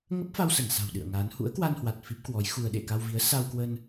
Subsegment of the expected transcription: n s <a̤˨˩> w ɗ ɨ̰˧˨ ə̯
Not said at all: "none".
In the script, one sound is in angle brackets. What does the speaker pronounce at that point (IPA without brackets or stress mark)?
a̤˨˩